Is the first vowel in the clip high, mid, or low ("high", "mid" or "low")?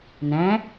low